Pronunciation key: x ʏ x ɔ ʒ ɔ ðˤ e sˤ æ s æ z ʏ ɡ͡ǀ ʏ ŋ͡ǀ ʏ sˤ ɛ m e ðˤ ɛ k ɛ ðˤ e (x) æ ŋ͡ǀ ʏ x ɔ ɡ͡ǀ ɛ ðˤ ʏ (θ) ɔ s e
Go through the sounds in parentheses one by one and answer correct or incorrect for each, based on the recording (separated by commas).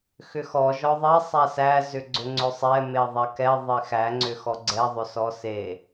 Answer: correct, incorrect